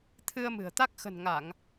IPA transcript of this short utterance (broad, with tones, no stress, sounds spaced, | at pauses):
t̪ʰ ɨ˧ ə̯ m ɨ̤˨˩ ə̯ t̪ a˦˥ k̚ x ə̤˨˩ n ŋ a˧˩˨ ŋ